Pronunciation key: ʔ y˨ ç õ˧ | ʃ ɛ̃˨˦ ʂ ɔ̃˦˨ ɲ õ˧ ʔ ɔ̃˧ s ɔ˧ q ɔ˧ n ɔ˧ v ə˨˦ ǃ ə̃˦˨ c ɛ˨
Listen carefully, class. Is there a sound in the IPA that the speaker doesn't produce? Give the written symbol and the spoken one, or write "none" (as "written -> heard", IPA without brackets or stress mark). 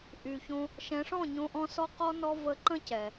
none